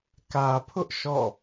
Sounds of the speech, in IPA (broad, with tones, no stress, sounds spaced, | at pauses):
k ä˨ pʰ ʊ˦ ʔ ʃ ɔ̰˦˨